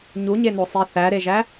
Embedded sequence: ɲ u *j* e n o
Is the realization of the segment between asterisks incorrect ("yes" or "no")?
yes